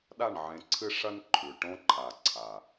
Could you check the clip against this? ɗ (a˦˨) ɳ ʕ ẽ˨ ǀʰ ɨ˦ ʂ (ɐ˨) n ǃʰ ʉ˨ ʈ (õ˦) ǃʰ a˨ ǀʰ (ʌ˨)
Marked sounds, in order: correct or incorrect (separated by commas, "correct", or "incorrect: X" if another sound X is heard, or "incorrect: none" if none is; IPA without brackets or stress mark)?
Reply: correct, incorrect: ɐ˦, correct, incorrect: a˨